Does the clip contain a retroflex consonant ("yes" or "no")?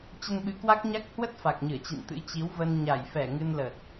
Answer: no